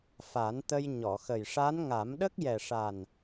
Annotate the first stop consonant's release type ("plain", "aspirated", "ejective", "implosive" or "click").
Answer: plain